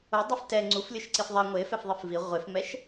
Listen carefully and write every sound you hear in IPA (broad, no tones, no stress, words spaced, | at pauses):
odˤɛf tɛ ŋ͡ǀuflʲɯʃǀif ðˤɛ ŋʷe fɛfðˤifvi ʁʷefmɛʃ